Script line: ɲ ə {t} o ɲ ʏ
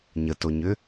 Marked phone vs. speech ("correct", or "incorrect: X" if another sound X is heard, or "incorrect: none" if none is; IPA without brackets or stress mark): correct